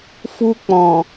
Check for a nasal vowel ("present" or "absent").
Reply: present